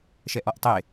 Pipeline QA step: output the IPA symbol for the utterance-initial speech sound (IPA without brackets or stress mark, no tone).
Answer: ʃ